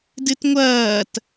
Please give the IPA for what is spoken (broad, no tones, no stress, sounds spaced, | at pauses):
d ɨ t ŋʷ ɐː t